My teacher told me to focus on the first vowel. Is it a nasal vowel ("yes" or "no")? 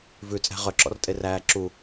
no